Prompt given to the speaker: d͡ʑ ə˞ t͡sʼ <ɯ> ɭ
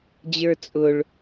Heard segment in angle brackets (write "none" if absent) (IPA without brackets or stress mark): ʊ